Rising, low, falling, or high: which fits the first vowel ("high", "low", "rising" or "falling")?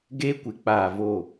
high